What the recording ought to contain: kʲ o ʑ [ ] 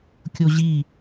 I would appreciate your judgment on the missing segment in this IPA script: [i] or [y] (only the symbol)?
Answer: i